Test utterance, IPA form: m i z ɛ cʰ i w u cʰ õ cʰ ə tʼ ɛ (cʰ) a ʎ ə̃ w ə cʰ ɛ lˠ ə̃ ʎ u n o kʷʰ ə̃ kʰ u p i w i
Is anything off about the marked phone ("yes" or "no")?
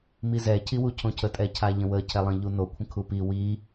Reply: no